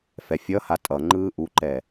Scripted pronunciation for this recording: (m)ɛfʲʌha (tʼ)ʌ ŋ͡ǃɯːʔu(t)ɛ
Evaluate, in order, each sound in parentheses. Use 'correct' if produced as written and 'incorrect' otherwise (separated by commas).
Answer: incorrect, correct, incorrect